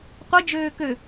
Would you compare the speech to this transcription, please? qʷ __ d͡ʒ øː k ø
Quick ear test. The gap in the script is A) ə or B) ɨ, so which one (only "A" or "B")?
A